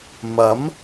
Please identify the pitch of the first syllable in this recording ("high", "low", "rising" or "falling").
rising